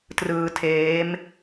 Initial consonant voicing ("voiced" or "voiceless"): voiceless